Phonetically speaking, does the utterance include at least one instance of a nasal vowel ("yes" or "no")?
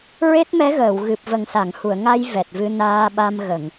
no